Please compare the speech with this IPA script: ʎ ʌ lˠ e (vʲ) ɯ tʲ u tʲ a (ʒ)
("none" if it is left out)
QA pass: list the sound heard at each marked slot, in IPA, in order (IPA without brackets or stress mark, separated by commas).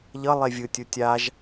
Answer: vʲ, ʒ